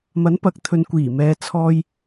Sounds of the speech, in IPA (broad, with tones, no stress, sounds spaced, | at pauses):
m ɐ˨˥ n p ɐ˨ k̚ t̪ʰ ɵ˨ n kʷ iː˨˩ m ɛː˨ t͡sʰ ɔː˧ j